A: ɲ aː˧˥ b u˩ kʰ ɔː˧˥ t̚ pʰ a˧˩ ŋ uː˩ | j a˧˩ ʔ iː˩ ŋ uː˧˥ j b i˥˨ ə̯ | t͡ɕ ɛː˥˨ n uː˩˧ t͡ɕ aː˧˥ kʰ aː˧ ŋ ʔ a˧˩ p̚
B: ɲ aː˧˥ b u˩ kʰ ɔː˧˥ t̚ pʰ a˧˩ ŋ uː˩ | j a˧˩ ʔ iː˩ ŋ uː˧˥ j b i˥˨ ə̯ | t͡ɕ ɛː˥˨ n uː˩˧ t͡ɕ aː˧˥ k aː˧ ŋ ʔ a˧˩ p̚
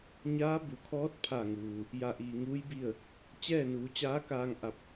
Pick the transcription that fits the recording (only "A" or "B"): B